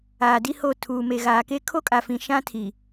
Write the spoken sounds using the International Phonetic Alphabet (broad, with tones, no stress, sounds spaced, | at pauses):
aː˨ d i˦ h o˦˨ tʰ uː˨ m e˨ ɣ aː˨ k e˦ kʰ o˦ kʼ a˨ f ĩ˨ ʃ ã˦ tʰ i˨